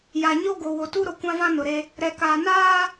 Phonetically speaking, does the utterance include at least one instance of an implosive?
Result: no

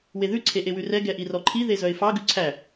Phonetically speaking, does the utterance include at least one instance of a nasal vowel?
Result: no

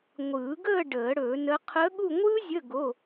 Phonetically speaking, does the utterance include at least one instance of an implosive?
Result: yes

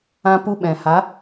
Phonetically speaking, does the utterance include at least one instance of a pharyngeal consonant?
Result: no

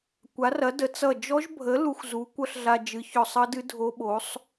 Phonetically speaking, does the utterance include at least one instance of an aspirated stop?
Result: no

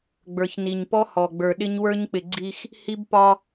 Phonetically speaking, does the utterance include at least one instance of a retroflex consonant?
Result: no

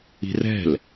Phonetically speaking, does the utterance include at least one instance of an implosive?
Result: no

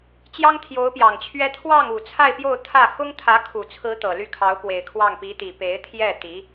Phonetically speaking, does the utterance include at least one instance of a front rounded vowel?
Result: yes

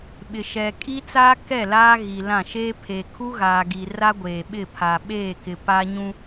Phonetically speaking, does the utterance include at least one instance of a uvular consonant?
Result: no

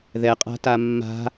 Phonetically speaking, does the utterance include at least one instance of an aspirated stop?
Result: no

